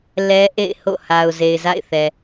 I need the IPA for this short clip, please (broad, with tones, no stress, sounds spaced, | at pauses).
l ɛ˦ ʔ ḛ˦˨ ɪ̯ h o̰˦˨ h a˨ ʊ̯ z e˨ ɪ̯ z a̰˦˨ ɪ̯ θ ɛ˨